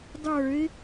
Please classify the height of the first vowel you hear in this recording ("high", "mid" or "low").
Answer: mid